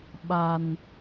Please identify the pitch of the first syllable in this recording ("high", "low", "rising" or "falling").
low